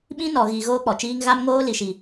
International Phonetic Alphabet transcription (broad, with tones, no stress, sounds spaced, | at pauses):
ɓ ĩ˦ n ɔ˨ ɣ i˨ ɣ oː˦ k͡p ɔ˨ t͡ʃ iː˦ ŋ ɣ a˦ m ŋ oː˦ l i˨ ʃ i˨